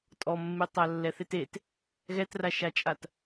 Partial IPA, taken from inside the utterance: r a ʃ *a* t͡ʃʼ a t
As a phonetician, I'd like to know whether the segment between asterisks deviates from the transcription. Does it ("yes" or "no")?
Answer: no